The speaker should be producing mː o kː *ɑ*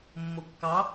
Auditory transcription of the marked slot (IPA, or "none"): ɑ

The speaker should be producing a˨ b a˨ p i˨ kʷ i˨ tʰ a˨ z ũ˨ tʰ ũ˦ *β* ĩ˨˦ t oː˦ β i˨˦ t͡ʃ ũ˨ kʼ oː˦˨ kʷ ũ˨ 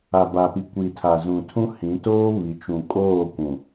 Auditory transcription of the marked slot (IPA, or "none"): h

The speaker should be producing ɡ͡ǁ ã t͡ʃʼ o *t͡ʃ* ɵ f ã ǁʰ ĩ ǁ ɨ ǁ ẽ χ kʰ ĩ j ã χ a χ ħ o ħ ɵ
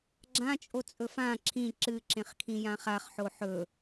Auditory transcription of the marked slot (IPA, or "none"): t͡sʼ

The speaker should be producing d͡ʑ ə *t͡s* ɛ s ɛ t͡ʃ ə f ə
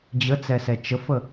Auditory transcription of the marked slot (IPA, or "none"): t͡s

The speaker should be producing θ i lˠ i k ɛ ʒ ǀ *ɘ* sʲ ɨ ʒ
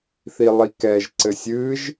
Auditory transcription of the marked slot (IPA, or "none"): ɘ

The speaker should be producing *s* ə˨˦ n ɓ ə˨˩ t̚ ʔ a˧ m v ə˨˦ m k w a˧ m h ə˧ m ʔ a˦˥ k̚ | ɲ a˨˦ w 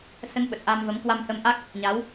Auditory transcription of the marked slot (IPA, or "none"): s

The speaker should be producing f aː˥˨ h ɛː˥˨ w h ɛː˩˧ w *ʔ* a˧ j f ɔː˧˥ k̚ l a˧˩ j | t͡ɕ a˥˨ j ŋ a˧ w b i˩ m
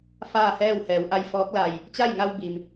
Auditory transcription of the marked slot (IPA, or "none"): ʔ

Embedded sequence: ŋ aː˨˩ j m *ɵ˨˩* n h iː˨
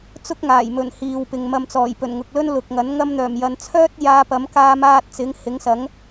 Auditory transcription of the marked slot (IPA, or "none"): ɵ˨˩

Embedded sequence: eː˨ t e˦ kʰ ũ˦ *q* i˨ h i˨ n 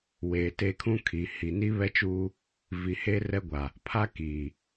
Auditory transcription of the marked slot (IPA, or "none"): kʰ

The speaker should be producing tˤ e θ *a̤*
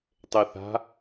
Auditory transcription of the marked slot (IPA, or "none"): a̤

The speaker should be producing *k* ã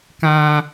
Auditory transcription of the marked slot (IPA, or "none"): k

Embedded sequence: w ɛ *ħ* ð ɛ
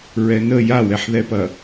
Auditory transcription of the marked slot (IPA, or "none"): ħ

